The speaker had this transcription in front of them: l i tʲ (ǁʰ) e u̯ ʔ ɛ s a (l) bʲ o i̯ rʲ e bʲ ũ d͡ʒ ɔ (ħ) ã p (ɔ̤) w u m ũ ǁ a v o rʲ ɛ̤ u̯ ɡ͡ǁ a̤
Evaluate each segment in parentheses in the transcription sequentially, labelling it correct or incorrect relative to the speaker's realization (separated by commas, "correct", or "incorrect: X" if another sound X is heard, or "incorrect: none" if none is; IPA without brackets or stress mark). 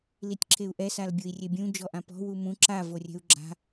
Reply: correct, correct, incorrect: ʔ, correct